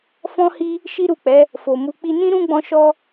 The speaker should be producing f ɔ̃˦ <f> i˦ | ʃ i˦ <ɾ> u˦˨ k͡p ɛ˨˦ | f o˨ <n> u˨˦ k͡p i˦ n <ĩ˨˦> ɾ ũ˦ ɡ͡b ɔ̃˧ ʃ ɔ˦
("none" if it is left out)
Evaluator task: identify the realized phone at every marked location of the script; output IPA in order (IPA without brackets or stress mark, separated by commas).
h, ɾ, m, ĩ˦